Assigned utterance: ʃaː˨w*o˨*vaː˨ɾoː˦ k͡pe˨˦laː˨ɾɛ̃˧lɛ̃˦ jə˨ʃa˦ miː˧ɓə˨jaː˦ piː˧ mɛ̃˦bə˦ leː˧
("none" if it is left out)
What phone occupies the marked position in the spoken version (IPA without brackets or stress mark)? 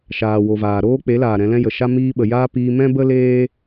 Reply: o˨